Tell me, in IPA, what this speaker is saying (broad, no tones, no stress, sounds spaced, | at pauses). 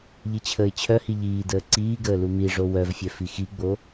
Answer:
ʎ i t͡ɕʰ əː ɪ̯ t͡ɕʰ œ h i ʎ iː d əː ǀ iː ɡ əː l u m i ʐ o w œ v fʲ œ f i x i ɡ͡b o